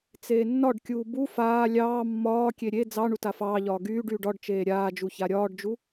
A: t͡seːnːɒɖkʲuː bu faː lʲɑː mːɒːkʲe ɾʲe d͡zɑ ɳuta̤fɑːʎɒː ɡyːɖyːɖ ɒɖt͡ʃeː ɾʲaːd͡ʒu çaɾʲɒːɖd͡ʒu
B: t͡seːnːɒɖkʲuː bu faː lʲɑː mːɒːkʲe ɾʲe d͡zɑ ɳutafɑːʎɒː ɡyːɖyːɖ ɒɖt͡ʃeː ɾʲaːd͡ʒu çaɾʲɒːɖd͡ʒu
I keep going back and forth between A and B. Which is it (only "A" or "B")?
B